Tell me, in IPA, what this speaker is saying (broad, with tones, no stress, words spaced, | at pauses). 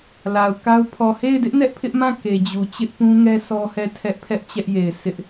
la˨ʊ̯ka˦ʊ̯ pʰɔ˨he˦˨ɪ̯dɪ˦ʔ nɛ˦ʔpʰɪ˦ʔmã˦˨ ke˨d͡ʑu˨ t͡ɕɪ˦ʔpũ˦ŋɛ˦ sɔ˦hɛ˦˨tʰɛ˦ʔpʰɛ˦ʔ t͡ɕɛ˦ʔje˨ɪ̯ sʰɪ˦ʔ